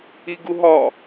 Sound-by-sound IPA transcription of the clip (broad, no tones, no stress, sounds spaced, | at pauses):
i ɡ u ɦ ɒ